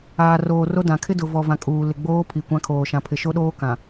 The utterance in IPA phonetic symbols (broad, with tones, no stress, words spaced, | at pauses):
aː˨roː˨ro˦ dã˨ kʰɪ˦dʊ˨vɔ˨vã˨ kʼuː˨ lɪ˨ɡ͡boː˦ pʰi˨kʷã˦kʰoː˨ ʃã˨pʰɪ˨ʃo˦ɗoː˦ kã˨